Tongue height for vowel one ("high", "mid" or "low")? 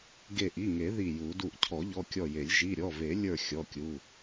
mid